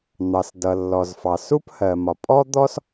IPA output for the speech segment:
n̪ɑ˩sdʌ˩lːɔ˩zfɑ˩ su˥phɜ˩mɒ˩ pʼɔ˥d̪ɔ˥s

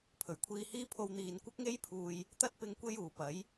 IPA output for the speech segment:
pʰɵ˨˩ɥkʷʰiː˧hiː˥pʰo˧w n̪iː˨nkʷɐ˥k̚ŋe˥jpʰuː˨j | t̪ɐ˥t̚pɪ˧ŋ kʷe˥juː˨˩pɐ˨˥j

